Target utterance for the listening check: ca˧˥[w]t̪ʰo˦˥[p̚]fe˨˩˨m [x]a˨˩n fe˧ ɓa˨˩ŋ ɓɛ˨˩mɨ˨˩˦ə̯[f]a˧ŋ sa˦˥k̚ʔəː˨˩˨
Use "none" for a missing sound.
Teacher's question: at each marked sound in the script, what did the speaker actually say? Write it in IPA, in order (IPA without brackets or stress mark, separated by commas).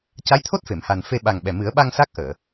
j, t̚, h, ɓ